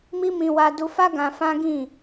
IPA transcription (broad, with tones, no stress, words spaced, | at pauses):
mi˦mĩ˧ wa˧du˧fa˦ ɡã˧fã˦ɡĩ˦˨